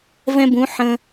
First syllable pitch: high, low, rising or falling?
high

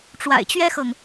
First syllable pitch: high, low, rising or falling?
low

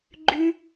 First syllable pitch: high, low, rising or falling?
high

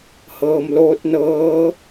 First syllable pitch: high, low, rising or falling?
low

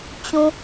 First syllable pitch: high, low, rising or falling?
low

